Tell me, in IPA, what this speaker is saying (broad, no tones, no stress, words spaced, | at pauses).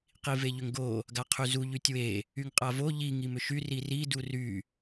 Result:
qiveʎʏŋɡo | ɡaqʰyzu ʎytʲwe | yŋqʼavo ʎi ŋimʏʃy riri dury